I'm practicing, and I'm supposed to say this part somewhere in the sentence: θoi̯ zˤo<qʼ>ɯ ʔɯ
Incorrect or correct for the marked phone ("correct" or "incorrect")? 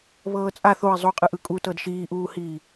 correct